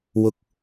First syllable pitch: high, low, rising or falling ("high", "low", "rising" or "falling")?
high